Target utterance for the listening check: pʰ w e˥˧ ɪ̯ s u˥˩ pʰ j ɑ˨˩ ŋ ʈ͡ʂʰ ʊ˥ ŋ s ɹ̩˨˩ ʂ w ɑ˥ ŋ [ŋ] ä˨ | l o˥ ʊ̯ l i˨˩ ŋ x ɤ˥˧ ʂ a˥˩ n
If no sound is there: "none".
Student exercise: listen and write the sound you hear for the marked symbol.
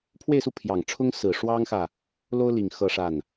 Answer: x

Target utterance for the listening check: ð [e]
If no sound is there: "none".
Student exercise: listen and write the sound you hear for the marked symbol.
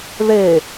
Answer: e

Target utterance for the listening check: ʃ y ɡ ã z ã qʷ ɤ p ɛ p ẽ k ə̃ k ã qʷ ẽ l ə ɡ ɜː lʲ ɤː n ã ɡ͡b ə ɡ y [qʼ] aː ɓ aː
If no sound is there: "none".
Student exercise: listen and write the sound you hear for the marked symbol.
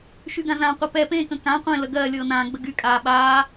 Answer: kʼ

